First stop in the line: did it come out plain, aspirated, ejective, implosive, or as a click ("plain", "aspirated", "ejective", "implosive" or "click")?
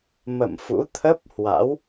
aspirated